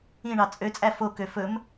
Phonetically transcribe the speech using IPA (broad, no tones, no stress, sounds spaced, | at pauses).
ĩ ɳ ɑ t͡sʼ ø t͡sʼ æ f o k ø f ɵ m